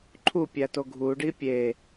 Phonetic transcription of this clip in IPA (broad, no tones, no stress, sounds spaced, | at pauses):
ǃʰ u pʲ æ t o ɡʱ u ɖ i pʲ e